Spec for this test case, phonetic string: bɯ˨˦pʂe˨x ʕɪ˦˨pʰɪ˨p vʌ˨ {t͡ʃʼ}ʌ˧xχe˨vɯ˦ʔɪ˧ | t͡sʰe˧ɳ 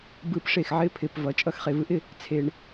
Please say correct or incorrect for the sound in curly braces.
correct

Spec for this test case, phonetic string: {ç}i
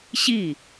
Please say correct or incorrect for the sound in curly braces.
incorrect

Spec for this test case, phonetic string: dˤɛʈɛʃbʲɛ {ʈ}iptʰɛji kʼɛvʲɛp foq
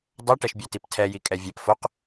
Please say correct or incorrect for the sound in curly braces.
incorrect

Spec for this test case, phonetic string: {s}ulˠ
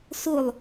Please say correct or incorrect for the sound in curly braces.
correct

